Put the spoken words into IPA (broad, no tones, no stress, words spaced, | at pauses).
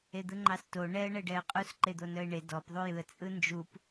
ed̪ɯŋ͡ǃɑsto ɳɛə̯ ɳɛɖɛə̯qʼus ǃed̪onœɪ̯ɳe dɔp ðˤujɯə̯ t͡sʼɯnd͡ʒup